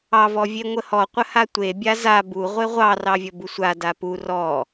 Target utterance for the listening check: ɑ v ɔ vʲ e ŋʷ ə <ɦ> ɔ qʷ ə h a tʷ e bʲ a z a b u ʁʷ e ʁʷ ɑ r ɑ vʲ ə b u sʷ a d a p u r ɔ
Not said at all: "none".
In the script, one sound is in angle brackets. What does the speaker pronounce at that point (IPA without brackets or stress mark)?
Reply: h